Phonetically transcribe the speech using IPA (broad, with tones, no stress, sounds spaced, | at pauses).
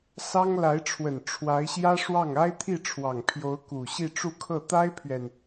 s ɑ˥ ŋ l a˧˥ ɪ̯ ʈ͡ʂʰ w ə˨˩ n ʈ͡ʂʰ w a˧˥ ɪ̯ ɕ j ä˥ ʂ w ɑ˥˩ ŋ a˥ ɪ̯ t̪ʰ i˥˩ ʈ͡ʂʰ w ɑ˨˩ ŋ pʰ j o˧˥ ʊ̯ k u˨˩ ɕ i˥˧ ʈ͡ʂ u˥˧ kʰ ɤ˥˩ t̪ a˥ ɪ̯ pʰ ɥ ɛ˨ n